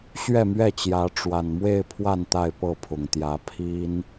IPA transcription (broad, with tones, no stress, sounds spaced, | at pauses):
ɕ ɥ ɛ˥˨ m ɥ ɛ˥˨ t͡ɕ j ä˨˦ ʈ͡ʂ w a˨˩ n m w e˥˨ ɪ̯ pʰ w a˥˨ n t̪ a˥˨ ɪ̯ p ɤ˥˨ pʰ ʊ˨˩ ŋ t̪ j ä˨˦ pʰ i˦ n